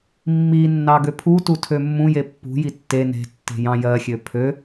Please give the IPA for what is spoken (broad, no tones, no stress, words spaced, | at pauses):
mːinːɑ ɡøpʰutu tʰømːũje pːṳji tːe ne̤tːe̤ jɑ̃ jɜxʲø pʰø